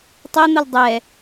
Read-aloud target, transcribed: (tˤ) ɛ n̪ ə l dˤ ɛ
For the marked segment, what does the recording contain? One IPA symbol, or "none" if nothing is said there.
tˤ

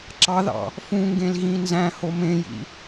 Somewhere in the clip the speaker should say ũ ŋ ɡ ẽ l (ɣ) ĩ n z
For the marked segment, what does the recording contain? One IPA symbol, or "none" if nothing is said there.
ɣ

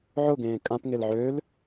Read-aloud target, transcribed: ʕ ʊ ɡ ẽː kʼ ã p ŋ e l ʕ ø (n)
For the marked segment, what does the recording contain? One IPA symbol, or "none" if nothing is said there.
l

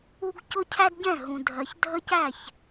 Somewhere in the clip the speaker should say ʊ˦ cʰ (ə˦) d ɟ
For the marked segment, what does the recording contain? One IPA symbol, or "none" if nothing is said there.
æ˦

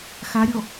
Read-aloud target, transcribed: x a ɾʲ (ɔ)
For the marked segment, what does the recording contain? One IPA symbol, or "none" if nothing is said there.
ɔ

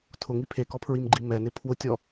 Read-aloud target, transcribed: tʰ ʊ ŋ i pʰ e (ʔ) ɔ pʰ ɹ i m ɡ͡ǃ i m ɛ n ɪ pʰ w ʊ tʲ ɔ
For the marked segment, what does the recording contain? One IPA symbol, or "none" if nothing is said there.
k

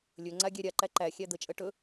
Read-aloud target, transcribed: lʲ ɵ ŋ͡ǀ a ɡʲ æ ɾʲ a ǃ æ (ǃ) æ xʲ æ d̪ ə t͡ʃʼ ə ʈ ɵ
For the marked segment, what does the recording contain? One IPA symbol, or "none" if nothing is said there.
ǃ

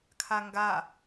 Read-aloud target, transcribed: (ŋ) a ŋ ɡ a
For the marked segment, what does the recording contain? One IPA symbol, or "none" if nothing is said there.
kʰ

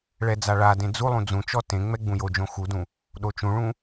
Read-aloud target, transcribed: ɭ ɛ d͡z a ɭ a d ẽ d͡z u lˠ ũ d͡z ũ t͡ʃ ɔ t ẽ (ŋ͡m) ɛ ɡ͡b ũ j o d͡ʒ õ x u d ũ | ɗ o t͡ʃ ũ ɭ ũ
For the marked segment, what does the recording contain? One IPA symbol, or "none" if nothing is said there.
ŋ͡m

